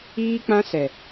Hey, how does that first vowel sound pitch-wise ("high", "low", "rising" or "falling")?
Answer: high